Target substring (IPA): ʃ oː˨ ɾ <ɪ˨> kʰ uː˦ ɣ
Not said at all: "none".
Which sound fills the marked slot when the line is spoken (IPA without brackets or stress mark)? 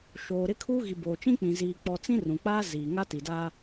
ɪ˦